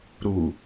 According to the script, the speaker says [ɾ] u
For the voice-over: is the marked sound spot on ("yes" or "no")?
yes